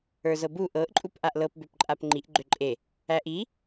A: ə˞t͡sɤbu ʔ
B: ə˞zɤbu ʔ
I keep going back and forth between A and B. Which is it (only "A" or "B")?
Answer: B